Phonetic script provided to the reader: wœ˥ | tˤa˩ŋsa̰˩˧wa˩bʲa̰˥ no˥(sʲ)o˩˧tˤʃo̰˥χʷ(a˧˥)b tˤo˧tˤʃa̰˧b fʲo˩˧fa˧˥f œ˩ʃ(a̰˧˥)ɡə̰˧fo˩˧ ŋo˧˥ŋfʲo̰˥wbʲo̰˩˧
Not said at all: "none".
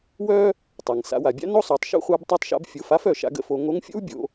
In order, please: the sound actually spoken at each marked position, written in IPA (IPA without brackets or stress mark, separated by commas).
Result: sˤ, a˧˥, a̰˧